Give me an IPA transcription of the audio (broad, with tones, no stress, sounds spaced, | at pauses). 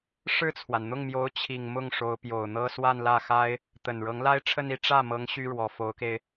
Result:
ʂ ɻ̩˥˩ t͡sʰ w a˩ n n̪ ʊ˥˩ ŋ m j o˧˥ ʊ̯ t͡ɕʰ i˨˩ ŋ m ʊ˥˩ ŋ ʂ o˧˥ ʊ̯ p j o˨˩ ʊ̯ n̪ ɤ˥ s w a˥˧ n l ä˥˩ x a˥ ɪ̯ | t̪ ə˨˩ n ɻ ɤ˧˥ ŋ l a˥ ɪ̯ ʈ͡ʂʰ ə˥˧ n i˥˧ ʈ͡ʂ ä˥˩ m ɤ˧˥ ŋ ɕ y˥ ɻ w ɔ˨˩ f o˧˥ ʊ̯ k e˧ ɪ̯